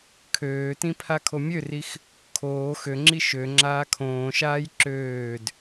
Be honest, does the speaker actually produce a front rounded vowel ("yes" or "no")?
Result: yes